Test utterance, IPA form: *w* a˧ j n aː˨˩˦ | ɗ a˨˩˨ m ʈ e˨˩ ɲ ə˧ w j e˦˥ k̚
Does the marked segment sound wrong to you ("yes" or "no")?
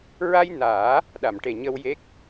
yes